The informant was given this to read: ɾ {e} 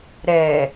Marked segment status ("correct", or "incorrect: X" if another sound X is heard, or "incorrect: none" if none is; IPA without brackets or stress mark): incorrect: ɛ